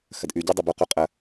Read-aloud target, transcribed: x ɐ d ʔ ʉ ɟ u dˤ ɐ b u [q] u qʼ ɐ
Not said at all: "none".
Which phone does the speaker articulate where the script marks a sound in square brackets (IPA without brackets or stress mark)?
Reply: q